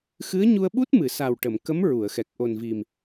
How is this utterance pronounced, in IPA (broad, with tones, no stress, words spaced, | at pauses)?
xɨ˧˥ə̯ɲu˧ə̯ɓu˦˥t̚ mɨ˨˩˨sa˨˩wʈə˨˩˨m kə˧˥m ɹu˨˩˨ə̯xɛ˨˩k̚ ʔo˨˩nvi˨˩m